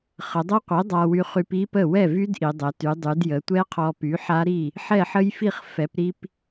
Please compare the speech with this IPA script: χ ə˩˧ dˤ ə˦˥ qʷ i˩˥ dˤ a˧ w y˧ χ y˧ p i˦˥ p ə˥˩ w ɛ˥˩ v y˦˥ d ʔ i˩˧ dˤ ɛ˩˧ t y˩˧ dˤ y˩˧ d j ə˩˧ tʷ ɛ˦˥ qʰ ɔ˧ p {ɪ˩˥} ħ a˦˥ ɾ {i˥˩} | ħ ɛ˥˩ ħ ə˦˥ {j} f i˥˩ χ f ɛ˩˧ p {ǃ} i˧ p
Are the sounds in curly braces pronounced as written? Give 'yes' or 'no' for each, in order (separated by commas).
no, yes, yes, no